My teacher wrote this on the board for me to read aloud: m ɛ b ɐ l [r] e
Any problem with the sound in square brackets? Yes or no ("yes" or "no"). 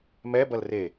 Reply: no